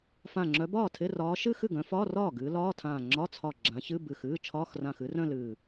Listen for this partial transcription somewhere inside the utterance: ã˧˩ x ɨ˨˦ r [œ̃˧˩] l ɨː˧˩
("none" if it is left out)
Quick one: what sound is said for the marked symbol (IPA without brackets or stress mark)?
œ̃˥˧